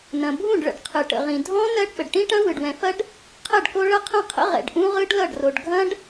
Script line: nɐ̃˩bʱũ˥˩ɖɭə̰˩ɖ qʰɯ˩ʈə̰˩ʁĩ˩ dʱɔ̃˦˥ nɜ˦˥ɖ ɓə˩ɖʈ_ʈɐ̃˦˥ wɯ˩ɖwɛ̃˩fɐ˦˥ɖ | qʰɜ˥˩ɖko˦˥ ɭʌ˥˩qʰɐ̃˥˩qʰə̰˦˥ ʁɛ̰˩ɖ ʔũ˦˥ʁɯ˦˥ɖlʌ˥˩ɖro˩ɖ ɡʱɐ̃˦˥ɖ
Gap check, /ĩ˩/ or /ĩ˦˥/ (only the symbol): ĩ˦˥